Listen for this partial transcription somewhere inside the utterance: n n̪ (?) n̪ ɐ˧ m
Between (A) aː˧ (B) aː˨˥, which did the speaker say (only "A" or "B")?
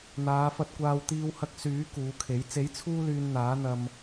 B